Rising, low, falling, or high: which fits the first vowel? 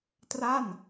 falling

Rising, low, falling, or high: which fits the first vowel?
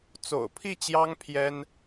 low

